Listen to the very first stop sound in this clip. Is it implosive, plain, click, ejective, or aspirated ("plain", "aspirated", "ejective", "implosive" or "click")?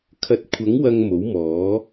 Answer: aspirated